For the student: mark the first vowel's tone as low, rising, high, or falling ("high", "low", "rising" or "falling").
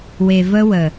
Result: low